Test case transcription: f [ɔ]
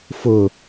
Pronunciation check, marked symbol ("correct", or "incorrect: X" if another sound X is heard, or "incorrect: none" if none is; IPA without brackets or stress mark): incorrect: ʊ